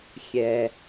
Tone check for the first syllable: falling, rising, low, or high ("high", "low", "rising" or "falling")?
low